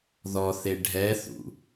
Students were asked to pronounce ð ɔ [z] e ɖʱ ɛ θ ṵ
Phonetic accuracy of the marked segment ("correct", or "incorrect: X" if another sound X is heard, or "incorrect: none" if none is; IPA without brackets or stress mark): incorrect: θ